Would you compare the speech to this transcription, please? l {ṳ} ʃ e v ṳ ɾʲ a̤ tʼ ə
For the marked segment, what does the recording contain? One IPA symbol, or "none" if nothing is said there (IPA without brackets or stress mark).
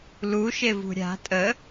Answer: u